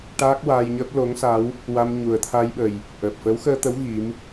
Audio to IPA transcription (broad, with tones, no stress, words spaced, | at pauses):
ʈaː˦˥k̚waː˧jɲəː˦˥p̚ lo˧˥ŋsa˧˥w | wa˧m ɲu˨˩ə̯t̪ʰa˧jɓə˨˩j | ʔəː˨˩p̚fəː˧˥wxəː˧t̪ə˧˥w ɣi˧˥m